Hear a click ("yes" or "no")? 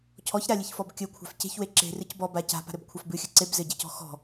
yes